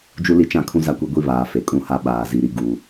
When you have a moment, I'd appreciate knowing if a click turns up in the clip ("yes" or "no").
no